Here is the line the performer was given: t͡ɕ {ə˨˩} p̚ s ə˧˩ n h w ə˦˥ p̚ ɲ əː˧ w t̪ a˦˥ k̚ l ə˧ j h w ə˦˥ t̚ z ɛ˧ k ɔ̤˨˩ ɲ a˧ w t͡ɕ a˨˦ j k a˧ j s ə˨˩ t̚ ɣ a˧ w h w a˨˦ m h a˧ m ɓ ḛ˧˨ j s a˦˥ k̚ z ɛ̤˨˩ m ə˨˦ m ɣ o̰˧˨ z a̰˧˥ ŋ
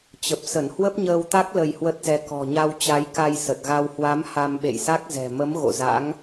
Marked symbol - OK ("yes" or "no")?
yes